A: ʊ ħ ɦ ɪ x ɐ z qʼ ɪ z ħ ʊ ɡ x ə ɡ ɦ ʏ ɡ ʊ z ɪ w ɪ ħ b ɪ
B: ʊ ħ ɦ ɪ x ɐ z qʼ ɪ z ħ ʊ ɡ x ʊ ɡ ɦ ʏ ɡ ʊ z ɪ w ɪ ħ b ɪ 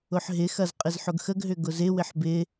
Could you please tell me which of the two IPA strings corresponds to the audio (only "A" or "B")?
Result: A